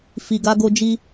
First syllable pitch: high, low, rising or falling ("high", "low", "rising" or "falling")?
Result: low